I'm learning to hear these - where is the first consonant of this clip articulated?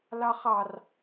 tongue tip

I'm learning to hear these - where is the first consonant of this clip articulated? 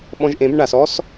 lips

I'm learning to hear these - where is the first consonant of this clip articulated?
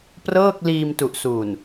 lips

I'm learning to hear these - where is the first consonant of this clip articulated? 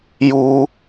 palate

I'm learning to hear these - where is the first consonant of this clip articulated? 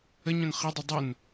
palate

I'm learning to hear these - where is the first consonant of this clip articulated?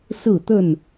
tongue tip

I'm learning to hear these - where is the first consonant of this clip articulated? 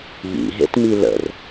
palate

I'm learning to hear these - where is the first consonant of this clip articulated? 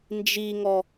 tongue tip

